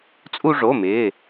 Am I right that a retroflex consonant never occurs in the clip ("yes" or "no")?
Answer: no